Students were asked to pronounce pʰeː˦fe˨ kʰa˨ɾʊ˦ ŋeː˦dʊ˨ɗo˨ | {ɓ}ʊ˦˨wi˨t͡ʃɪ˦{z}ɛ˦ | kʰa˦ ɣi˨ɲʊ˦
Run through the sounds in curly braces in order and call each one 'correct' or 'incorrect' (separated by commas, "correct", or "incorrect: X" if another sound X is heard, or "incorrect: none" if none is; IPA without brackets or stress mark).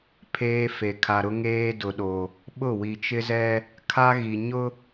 correct, correct